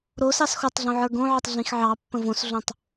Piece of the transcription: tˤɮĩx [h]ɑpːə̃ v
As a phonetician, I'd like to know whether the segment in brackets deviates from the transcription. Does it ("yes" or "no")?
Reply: yes